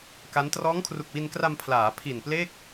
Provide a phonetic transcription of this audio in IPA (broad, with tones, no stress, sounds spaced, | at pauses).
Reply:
k a˦˥ n t r ɔː˦˥ ŋ kʰ r u˨˩ k̚ w i˧ n k r a˧ m pʰ l aː˩˦ pʰ i˨˩ n p l e˥˩ k̚